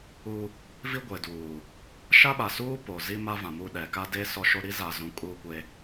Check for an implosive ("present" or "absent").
present